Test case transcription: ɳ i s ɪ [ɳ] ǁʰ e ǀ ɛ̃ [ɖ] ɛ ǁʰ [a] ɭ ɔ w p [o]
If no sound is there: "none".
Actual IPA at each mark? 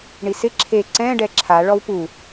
none, ɖ, a, u

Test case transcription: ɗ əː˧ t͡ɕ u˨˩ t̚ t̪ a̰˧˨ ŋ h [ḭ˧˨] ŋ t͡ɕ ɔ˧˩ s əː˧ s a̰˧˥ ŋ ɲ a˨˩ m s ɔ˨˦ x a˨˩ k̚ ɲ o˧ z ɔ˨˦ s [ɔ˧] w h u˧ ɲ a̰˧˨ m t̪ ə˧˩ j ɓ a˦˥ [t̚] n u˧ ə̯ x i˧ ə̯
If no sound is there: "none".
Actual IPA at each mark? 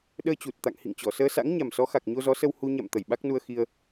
ḭ˧˨, ə˧, k̚

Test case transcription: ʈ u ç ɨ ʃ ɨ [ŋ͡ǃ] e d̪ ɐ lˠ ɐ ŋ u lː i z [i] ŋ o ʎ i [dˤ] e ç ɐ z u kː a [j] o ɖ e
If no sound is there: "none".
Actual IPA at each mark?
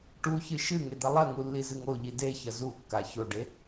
ŋ, ɨ, d, ç

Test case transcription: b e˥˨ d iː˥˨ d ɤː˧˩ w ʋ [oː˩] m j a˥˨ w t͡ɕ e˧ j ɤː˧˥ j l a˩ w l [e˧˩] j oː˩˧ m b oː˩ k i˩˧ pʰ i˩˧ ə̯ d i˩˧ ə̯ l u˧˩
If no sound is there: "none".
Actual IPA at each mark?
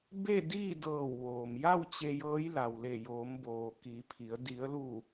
oː˩, e˧˩

